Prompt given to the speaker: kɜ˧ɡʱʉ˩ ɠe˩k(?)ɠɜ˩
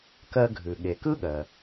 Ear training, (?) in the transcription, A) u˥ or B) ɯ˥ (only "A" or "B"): B